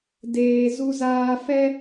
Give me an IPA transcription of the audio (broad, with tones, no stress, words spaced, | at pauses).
deː˨zu˧zaː˧fɛ˦